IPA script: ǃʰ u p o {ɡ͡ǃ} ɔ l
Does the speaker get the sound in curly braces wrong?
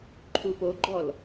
no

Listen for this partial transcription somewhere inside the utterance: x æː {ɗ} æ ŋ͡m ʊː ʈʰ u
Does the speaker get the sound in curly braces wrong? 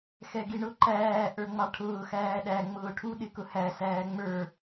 no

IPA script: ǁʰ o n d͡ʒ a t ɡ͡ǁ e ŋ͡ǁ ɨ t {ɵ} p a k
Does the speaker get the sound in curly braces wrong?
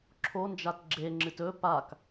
no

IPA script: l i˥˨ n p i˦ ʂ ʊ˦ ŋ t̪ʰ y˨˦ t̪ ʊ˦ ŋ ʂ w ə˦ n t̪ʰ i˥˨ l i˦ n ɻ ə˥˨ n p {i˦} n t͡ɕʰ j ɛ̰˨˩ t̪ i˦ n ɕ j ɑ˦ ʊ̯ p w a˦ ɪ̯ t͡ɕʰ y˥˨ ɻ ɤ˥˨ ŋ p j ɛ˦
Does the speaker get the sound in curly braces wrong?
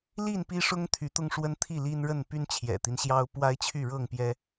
yes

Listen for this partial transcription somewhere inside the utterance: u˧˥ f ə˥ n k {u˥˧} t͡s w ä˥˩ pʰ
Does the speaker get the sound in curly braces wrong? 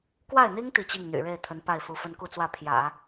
no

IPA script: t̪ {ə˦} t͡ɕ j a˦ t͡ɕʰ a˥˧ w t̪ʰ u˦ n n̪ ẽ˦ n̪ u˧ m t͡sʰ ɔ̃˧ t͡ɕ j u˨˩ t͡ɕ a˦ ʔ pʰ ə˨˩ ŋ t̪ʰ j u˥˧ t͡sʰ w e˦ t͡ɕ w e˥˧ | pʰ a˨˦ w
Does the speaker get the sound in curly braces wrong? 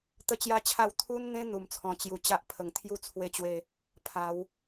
no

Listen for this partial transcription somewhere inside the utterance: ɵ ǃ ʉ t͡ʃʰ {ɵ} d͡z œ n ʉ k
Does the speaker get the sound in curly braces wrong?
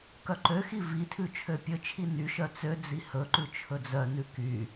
no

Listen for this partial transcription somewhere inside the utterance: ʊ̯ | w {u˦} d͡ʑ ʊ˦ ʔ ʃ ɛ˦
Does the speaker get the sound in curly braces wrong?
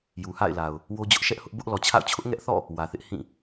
yes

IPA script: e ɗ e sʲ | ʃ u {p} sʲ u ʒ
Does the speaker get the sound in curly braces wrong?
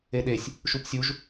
no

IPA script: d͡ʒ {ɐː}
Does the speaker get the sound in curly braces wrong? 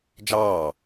yes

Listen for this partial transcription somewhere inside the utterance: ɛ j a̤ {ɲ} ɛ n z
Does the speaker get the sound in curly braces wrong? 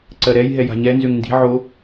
no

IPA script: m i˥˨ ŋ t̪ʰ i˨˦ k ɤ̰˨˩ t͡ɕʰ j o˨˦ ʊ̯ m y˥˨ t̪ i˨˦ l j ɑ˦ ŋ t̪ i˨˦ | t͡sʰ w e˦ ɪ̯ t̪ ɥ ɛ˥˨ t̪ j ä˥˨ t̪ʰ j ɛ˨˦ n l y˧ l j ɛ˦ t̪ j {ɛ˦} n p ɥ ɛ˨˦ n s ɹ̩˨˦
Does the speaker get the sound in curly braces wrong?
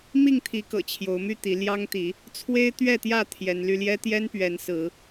no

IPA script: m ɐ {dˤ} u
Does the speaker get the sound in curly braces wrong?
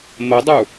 no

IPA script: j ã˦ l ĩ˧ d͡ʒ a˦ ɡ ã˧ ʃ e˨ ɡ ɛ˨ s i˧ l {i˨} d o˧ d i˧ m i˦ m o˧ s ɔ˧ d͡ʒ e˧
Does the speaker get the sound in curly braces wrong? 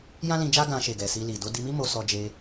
no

